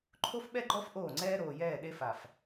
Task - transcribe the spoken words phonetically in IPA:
ǃʰ o˦ f ɓ ɛ˦ ɡ͡ǃ ɔ˦ f ʔ oː˦˨ ŋ͡ǀ ɛː˦ ɾ oː˨ j ɛː˦˨ ɗ e˦ f a˨ f

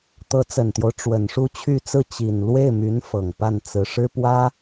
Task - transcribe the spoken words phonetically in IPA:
t̪ ɤ˧˥ t͡s ə˨˩ n t̪ j o˦ ʊ̯ ʈ͡ʂ w ə˨˩ n ʂ u˥˧ t͡ɕʰ y˥˧ t͡s ɹ̩˥˩ t͡ɕ i˨˩ n l w e˥˩ ɪ̯ m y˧˥ n f ɤ˨˩ ŋ p a˥˩ n t͡s ɹ̩˧˥ ʂ ɻ̩˥ p w ä˥

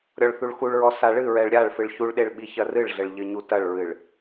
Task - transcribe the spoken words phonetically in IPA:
ɾʲ ɔ ɭ θ u ɭ x u ɭ ɹ ɔ s a ɭ ɨ ɹ ɛ ɭ ɾʲ a ɭ f ɨ ɭ ç u ɭ ɗ e ɭ ɓ i ç ɐ r ɨ ɭ ɮ ɘ ɭ ʎ ɘ ɲ u t ɐ ɭ ɹ ɨ ɭ

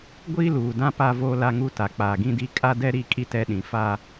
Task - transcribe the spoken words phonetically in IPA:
ɡʷ iː˦ l uː˨ d ã˦ p a˦ v oː˦ l a˦ ŋ u˦ t a˨ k͡p aː˨ ɡ ĩ˦ d i˦ kʼ a˦ d ɛ˦ ɾ i˦˨ kʼ i˦ t ɛ˦ ɗ ĩ˨ f a˦

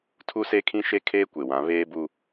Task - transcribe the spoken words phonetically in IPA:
tʰ u˦ s e˦ kʰ ĩ˦ ʃ e˦ kʰ eː˦ kʷ e˨ w ã˨˦ β eː˦ b u˦

